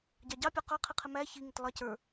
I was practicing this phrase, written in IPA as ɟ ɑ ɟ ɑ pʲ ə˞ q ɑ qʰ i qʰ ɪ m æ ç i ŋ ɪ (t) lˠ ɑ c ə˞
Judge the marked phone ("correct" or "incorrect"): correct